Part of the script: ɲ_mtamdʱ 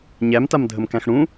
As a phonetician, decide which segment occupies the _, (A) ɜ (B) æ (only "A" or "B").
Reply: B